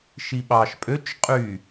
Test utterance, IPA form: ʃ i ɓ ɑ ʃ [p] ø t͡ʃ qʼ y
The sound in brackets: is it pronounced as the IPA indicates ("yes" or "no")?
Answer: no